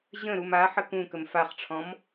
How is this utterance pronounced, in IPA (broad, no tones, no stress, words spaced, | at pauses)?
ʑə̃ ɾuma ħəkũkəm faχʈ͡ʂʰɔ̃m